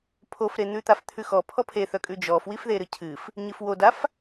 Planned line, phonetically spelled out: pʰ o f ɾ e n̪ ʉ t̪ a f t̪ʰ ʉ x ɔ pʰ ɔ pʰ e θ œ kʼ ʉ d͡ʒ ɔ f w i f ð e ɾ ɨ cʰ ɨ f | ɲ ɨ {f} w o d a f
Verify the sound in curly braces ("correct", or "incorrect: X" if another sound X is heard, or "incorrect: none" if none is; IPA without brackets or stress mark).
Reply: correct